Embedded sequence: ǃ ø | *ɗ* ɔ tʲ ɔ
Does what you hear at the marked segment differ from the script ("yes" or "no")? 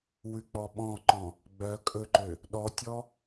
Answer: no